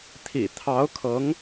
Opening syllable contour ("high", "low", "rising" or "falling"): low